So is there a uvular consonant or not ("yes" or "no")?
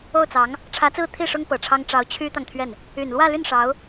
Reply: no